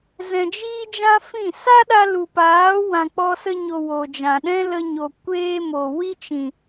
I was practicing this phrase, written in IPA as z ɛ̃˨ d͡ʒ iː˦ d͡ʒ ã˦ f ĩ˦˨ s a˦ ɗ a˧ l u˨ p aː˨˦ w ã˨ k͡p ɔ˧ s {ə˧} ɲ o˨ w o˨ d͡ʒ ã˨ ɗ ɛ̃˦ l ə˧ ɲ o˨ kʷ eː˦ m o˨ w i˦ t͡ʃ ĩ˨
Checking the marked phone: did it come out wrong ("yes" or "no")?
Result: no